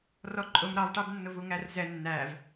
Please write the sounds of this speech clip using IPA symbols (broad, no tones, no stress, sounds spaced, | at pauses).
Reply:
r ɔ ǃʼ ʊ m ɾ ɑ v ʈ ɑ b nː ʊ v u ŋ æ r z ɛ nː æ v